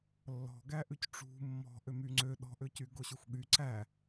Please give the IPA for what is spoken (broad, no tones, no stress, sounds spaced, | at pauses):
lː ɔ̤ ɡ æ ʔ ʉ c ʈ͡ʂ ṳ mː ɔ̤ ʔ ø m y ŋ͡ǀ ø ɗ ɔ̤ ʔ ø c y ɡ o ɕ y xʷ ɠ y ǀ æ